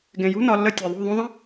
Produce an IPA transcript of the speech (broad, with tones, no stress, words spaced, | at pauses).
ɡẽ˨jṳ˦ nɒ˧ lːə˧ tʲe˨ðˤṳ˦˨ ðˤũ˧ðˤə̃˦